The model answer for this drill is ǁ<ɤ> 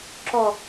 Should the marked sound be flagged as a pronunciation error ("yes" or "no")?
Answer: yes